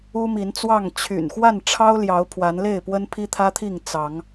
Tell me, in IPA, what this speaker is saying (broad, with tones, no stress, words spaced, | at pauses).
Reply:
u˦mi˨˦nt͡swɑ˥˨ŋ t͡ɕʰy̰˨˩nxwa˥˨n ʈ͡ʂʰɑ˦ʊ̯ljɑ˨˦ʊ̯ pʰwa˨˦nle˥˨ɪ̯pwə˦npʰi˦ t̪ʰä˦t̪ʰi˥˨ŋ t͡sɑ˨˦ŋ